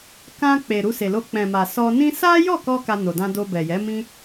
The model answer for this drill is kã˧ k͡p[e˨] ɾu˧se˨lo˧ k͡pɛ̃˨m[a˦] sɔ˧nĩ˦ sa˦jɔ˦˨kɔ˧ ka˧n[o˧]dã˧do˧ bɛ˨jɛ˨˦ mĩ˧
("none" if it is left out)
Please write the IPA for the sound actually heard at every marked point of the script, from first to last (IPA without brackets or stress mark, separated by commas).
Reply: e˨, a˨, o˨